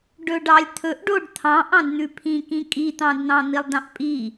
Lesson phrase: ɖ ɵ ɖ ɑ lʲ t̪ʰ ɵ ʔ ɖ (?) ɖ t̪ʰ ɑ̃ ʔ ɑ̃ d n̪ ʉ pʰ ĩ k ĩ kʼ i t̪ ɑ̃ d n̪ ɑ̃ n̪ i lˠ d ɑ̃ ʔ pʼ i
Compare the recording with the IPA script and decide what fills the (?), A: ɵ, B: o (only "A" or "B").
B